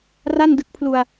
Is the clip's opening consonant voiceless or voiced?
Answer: voiced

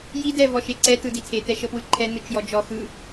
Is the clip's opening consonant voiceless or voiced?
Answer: voiced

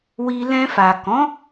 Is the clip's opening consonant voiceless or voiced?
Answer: voiced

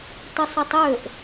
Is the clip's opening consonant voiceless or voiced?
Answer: voiceless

